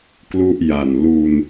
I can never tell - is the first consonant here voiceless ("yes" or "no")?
yes